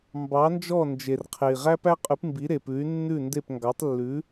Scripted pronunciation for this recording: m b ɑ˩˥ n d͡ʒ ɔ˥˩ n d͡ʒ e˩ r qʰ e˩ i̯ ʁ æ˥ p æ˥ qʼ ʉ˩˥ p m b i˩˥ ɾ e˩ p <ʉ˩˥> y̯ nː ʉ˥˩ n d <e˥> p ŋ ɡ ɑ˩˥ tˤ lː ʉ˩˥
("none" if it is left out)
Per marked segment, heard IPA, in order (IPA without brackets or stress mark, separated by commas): ʉ˩˥, e˥˩